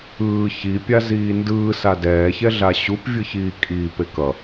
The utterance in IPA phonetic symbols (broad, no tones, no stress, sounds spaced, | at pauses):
ɯː ç i pʲ a z iː n d ɯː s a d ɛː ç ɛ ɮ a ɕ u p vʲ ɯ ç iː kʼ iː p e k ʌ